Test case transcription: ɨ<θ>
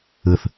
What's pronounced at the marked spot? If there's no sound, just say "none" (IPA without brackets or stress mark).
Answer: θ